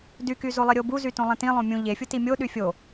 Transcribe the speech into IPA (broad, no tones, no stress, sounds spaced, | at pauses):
d y k y z o lˠ i ɾʲ o b u z y t õ lˠ ẽ t ĩ lˠ õ mʲ ũ ʎ e fʲ u t i mʲ o ɗ y fʲ o